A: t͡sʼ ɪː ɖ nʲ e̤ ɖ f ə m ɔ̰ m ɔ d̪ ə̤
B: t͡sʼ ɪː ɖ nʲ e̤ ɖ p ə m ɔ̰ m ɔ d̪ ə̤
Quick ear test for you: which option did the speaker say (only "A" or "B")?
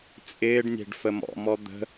A